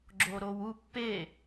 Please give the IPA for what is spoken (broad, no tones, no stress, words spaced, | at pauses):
ɡ͡ǁoːɾoːwu pːe